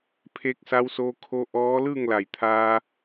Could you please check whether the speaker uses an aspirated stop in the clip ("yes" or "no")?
yes